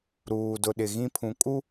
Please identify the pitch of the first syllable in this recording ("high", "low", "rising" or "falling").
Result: low